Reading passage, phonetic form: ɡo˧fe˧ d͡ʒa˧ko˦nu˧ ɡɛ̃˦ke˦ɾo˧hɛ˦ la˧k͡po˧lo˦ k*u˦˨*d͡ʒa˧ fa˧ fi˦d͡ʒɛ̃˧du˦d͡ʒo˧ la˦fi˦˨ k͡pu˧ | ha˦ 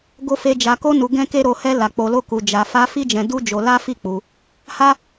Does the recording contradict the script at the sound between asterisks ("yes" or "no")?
yes